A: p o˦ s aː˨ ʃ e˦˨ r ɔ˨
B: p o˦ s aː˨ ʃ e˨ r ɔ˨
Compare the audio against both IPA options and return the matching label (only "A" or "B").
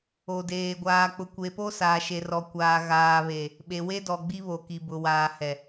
B